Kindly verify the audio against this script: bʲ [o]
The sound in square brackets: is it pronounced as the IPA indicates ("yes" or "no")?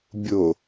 yes